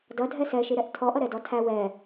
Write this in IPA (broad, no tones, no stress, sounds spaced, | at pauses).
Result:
d ʌ dʱ ɛ s ɛ ʃ i ɾ ɛ ʔ tʰ ɔ ʔ ʌ ɾ ɛ d ɔ tʰ æ w ɛ